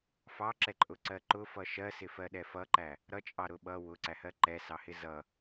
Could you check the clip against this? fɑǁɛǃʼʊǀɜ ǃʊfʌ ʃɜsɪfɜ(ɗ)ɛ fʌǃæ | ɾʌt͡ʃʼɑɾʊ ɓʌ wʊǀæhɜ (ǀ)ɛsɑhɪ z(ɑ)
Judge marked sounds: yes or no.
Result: yes, no, no

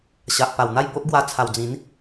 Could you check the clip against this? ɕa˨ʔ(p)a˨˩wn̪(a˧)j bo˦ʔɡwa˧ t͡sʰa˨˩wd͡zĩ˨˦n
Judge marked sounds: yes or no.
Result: yes, no

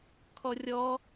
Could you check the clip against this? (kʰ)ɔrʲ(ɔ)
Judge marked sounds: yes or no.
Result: yes, yes

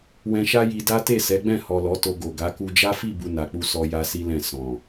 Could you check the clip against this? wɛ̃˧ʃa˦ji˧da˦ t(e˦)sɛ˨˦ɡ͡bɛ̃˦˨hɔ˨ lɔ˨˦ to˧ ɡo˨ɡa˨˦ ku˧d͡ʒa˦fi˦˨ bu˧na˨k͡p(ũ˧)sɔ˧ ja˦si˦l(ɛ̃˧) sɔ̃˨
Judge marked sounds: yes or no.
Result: no, no, no

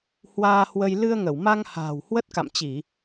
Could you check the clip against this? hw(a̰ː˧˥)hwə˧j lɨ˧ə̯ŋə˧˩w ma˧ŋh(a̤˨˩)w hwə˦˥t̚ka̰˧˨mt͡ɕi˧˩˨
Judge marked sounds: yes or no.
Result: no, no

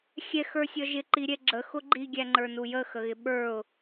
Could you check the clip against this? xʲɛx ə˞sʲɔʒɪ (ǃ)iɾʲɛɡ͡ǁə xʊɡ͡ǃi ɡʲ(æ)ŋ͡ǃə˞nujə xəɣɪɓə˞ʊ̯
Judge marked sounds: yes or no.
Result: yes, yes

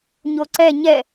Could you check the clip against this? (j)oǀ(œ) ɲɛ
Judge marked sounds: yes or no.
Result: no, no

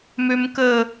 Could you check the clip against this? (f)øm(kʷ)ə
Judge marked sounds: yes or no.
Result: no, no

